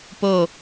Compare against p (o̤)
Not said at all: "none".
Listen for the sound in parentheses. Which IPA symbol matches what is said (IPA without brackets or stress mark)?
o